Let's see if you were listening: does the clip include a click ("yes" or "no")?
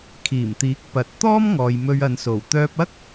no